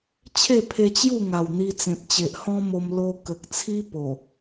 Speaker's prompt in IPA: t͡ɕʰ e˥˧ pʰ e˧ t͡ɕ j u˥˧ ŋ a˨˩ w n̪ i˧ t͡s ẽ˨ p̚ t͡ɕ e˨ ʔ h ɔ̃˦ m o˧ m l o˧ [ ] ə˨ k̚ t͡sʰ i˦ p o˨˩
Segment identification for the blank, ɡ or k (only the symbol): k